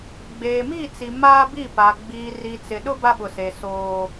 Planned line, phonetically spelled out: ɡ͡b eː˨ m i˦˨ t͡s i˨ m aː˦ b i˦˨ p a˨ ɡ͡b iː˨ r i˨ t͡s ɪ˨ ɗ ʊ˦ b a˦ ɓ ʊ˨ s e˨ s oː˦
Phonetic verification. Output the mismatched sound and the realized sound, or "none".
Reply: none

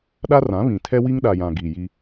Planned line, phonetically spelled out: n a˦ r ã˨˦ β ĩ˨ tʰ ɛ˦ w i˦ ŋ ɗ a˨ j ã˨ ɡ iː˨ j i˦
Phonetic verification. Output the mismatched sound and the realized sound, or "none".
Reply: n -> ɗ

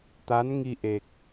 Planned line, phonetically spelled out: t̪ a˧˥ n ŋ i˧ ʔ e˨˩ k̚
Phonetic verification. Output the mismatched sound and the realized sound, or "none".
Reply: none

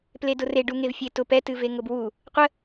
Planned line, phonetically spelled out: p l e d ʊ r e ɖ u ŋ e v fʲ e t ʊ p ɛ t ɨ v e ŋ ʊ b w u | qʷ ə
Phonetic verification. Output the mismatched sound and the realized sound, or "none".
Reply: none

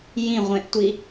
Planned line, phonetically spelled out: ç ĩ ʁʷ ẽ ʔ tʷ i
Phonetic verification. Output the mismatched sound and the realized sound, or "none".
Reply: ç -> j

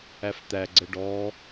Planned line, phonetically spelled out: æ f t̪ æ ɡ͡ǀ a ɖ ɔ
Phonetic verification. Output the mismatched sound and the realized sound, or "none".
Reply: a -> ə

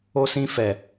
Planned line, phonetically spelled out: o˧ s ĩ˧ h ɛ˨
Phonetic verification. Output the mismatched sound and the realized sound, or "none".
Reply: h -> f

